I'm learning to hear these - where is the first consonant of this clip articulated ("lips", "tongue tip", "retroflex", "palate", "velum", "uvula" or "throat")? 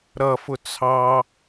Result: tongue tip